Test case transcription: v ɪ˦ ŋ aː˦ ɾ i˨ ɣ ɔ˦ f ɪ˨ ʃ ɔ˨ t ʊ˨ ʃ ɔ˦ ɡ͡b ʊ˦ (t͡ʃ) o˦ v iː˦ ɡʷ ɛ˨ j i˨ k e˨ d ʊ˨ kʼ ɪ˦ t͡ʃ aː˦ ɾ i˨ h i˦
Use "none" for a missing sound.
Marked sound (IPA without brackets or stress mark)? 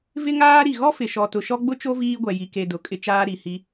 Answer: t͡ʃ